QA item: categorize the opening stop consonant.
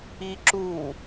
click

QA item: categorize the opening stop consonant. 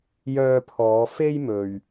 aspirated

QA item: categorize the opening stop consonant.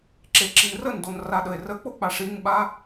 click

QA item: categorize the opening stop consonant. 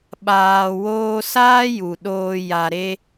implosive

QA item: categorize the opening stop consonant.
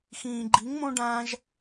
click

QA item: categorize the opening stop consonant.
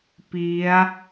plain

